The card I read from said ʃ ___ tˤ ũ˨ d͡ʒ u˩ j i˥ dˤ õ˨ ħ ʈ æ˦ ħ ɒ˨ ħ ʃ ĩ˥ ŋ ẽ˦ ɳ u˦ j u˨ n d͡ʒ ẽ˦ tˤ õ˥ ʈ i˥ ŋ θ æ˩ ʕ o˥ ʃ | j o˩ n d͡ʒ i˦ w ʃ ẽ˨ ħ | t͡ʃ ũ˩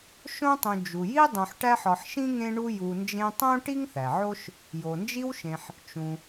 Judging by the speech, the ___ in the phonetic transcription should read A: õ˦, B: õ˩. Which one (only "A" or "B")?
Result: A